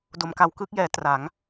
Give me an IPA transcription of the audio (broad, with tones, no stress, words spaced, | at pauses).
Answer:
do˩˦mka˩˦wkɯː˦˥k̚jɛː˩˦ tra˩˦ŋ